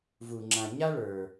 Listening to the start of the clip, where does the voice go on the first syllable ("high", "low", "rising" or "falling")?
low